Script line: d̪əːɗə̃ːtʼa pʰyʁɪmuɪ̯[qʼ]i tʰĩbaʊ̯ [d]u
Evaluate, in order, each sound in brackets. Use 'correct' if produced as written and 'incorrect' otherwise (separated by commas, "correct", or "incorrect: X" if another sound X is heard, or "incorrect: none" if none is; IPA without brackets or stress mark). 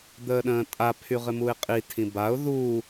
correct, incorrect: ð